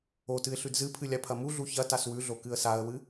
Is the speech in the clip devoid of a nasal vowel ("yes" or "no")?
yes